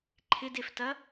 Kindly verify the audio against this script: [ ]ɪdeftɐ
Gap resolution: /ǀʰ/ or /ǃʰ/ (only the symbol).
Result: ǃʰ